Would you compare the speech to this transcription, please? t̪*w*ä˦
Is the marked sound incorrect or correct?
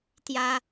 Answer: incorrect